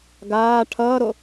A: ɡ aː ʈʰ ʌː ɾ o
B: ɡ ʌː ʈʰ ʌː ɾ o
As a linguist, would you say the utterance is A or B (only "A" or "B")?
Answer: A